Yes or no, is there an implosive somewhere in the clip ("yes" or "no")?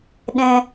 yes